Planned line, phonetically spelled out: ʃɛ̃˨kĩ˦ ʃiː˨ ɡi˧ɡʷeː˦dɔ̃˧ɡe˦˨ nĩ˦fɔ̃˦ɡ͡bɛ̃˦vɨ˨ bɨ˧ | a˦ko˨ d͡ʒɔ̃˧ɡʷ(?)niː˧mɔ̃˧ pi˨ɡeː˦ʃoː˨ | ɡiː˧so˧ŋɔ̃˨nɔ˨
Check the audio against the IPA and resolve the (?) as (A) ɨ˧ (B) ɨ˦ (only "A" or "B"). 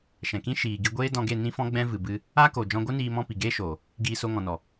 B